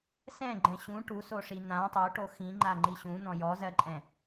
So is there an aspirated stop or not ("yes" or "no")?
no